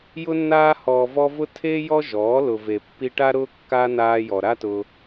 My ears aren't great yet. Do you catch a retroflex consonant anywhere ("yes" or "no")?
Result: yes